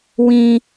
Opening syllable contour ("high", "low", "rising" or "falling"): high